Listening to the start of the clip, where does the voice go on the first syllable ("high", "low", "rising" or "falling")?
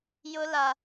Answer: high